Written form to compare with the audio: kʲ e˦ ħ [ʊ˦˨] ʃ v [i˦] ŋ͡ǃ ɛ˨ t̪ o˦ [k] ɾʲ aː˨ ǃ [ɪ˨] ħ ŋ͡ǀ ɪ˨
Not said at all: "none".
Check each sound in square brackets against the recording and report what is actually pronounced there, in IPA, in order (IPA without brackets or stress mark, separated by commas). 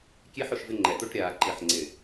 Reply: ʊ˦˨, ɪ˦, ʈ, ɪ˨